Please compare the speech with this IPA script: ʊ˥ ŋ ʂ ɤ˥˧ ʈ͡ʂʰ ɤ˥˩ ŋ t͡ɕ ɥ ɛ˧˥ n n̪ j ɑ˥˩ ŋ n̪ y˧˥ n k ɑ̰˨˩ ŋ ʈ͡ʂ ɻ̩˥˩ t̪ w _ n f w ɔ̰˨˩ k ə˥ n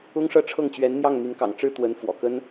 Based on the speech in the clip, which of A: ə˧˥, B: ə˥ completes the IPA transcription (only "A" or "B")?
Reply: A